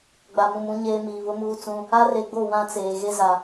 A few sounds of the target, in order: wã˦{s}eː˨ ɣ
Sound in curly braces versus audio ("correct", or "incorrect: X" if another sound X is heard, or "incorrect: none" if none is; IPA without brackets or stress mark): incorrect: t͡s